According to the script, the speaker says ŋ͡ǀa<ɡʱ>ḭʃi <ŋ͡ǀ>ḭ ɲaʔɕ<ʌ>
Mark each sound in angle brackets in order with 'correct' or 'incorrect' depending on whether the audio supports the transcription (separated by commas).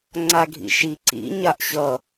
correct, incorrect, correct